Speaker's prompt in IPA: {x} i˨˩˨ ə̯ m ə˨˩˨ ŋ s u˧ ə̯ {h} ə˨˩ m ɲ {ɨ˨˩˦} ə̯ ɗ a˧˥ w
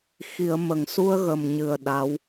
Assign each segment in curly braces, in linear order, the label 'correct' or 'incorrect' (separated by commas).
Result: correct, incorrect, incorrect